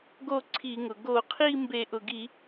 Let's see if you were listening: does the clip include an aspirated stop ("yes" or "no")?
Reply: yes